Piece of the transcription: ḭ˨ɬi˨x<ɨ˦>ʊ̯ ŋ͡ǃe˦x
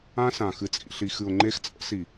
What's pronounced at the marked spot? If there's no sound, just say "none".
ɨ˨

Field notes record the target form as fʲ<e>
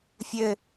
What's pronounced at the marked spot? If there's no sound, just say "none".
ɘ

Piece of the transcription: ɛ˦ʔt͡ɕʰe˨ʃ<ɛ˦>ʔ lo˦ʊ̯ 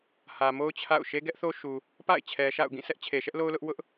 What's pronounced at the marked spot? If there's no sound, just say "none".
ɛ˦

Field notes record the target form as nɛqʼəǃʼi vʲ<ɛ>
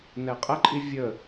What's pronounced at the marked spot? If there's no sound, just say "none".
ə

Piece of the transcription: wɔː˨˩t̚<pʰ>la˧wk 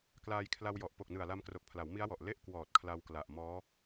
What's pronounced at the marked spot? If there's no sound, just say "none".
kʰ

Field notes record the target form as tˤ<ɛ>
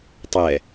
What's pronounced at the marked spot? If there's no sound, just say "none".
ɛ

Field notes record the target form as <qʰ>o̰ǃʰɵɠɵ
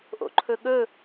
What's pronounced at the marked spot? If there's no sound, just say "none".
ʔ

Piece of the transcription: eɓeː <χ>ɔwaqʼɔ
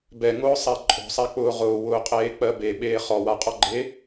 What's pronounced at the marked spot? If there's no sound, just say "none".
χ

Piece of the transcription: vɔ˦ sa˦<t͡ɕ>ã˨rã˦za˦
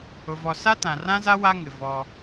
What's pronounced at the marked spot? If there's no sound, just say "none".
t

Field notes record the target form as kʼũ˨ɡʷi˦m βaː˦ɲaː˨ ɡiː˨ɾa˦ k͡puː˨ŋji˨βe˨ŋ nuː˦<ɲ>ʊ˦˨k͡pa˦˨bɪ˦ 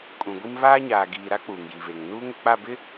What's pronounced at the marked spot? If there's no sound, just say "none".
ŋ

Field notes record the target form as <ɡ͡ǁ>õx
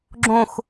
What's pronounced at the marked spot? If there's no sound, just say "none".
ɡ͡ǁ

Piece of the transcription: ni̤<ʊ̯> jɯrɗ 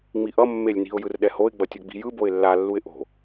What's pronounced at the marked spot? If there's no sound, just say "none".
ʊ̯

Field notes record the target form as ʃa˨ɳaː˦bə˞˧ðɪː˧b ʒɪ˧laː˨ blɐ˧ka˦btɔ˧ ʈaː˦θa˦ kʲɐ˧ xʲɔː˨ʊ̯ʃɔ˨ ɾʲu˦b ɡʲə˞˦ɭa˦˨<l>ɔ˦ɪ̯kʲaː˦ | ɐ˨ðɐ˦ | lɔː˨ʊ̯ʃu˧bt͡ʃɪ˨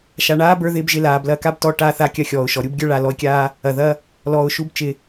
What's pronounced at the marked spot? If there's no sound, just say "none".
l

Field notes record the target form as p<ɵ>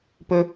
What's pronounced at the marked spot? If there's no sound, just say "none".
ɵ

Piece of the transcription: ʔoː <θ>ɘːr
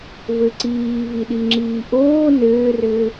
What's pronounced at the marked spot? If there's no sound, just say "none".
n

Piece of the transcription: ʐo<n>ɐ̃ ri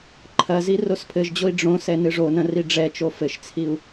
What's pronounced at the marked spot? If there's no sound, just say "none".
n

